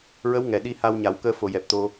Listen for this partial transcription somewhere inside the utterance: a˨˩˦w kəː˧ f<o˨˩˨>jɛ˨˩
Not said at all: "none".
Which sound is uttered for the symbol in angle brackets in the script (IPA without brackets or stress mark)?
o˨˩˨